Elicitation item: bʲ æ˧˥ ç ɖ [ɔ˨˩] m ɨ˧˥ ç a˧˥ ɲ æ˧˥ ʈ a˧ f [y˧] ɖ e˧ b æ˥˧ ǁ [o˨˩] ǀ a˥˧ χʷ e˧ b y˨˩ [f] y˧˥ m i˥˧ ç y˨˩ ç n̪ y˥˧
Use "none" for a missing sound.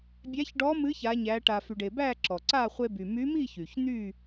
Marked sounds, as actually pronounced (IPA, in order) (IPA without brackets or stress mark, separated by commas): ɔ˧˥, y˧, ɔ˨˩, m